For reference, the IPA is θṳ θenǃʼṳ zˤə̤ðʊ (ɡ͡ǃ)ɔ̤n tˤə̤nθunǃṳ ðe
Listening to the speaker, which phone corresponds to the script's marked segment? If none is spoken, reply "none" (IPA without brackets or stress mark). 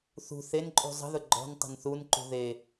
ɡ͡ǃ